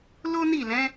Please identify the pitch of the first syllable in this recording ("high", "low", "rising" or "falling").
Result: high